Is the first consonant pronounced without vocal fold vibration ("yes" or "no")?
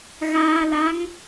no